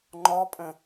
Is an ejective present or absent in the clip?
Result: present